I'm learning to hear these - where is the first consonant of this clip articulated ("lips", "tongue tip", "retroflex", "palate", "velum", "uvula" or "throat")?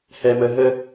throat